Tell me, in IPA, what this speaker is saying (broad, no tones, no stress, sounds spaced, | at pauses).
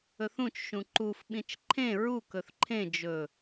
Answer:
ɵ θ ũ t͡ʃ ʃ ũ ǃ u f ɓ ĩ t͡ʃ ǃʰ ẽ ɹ u k ɵ θ ǃʰ ẽ d͡ʒ ɵ